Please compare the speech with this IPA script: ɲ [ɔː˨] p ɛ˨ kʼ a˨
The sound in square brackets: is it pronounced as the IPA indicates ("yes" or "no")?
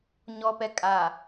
no